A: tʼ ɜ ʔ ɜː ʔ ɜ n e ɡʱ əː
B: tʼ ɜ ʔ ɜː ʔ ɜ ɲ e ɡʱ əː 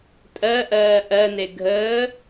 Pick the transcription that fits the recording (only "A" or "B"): A